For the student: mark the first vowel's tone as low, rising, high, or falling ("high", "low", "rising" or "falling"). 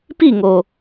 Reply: falling